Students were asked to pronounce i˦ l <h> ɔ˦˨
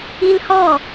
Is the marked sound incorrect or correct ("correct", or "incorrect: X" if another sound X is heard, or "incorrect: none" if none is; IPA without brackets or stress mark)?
correct